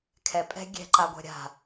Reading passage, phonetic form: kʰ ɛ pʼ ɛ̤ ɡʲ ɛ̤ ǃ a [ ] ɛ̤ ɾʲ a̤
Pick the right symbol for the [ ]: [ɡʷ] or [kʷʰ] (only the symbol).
ɡʷ